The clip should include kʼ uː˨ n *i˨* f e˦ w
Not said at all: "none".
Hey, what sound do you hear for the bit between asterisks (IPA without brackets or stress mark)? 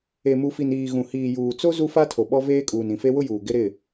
ĩ˨